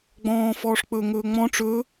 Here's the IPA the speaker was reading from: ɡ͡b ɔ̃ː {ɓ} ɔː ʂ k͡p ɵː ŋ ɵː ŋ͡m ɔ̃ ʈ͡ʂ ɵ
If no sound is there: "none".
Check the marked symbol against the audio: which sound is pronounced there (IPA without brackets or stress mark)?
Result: f